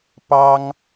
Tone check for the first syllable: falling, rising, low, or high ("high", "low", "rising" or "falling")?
high